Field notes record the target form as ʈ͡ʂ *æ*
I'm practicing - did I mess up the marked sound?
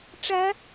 no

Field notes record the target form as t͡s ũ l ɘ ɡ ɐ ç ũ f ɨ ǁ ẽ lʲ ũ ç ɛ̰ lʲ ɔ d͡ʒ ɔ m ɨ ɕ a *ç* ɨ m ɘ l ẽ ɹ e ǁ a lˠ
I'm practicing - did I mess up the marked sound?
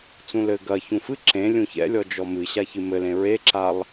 no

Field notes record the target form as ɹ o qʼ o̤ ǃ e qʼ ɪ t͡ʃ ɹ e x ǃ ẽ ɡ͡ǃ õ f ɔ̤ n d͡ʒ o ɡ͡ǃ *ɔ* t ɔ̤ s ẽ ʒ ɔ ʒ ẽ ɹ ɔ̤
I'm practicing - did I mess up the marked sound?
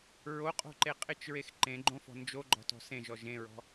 yes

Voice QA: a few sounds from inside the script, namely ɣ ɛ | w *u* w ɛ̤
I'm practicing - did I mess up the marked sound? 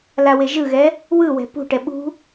yes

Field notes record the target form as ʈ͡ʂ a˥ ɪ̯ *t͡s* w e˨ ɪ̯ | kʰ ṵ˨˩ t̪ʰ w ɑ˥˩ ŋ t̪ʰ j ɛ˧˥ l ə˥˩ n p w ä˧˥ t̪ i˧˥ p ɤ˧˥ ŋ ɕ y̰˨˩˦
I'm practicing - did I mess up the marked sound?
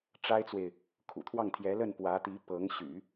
no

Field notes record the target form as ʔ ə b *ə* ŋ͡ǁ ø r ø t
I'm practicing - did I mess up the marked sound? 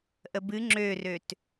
yes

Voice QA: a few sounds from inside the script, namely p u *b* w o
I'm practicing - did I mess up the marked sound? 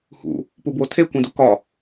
no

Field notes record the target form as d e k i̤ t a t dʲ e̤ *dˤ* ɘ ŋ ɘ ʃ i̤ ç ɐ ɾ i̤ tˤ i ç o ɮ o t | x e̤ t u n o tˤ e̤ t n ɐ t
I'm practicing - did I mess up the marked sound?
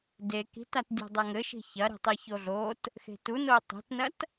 no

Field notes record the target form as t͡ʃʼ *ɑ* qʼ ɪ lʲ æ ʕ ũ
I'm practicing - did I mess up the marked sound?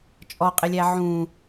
yes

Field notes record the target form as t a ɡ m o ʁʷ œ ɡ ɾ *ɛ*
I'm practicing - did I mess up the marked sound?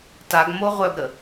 yes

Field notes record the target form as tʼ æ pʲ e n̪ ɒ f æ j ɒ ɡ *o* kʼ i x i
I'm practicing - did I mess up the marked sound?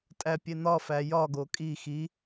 no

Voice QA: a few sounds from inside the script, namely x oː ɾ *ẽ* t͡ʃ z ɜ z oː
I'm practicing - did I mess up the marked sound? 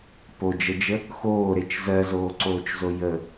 yes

